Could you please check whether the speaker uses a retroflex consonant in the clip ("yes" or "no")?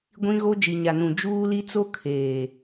no